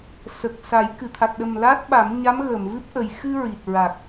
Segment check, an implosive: present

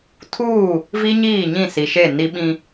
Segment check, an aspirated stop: present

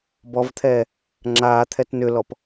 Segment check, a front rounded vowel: present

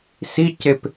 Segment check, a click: absent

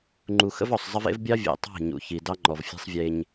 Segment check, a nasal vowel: absent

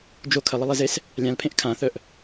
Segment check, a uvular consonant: absent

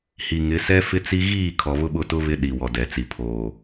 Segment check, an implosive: present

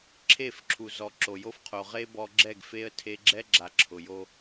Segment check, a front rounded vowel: absent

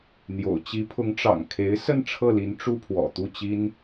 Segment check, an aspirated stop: present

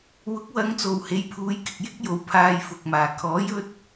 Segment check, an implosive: absent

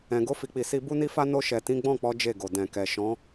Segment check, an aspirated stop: absent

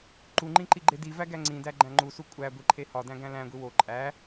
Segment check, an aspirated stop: present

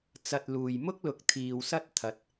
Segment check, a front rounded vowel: absent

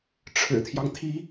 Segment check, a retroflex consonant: present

